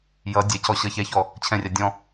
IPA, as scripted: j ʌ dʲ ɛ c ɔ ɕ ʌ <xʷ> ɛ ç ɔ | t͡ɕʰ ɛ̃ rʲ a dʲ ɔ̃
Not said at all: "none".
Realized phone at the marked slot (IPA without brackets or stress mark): ç